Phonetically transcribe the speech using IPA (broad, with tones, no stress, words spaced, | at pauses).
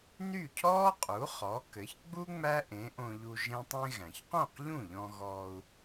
ny˥˩cʰɔː˥ qʼu˩˥χɔ˩˥kɘ˩˥ç ɡ͡bu˥ ŋ͡mæ˥ʔẽ˩˥ʔõ˧ʎu˧ ʒẽ˥tˤẽ˥ ɣæ̃˩çqõ˥˩qʎũ˥˩ʎɔ̃˧ ɣɔː˧u̯